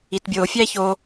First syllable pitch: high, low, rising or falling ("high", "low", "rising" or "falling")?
low